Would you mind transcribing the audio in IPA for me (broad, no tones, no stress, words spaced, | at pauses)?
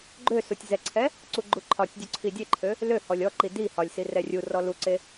ɡ͡ǃøsutʲ zɛǀʰɛ | ǀuɡ͡ǃuǃʰɒtʲdʲu ǀʰidʲeǃʰø | lø hɔlʲɔǃi di hɒlʲsi rɛrʲurɔ luǀe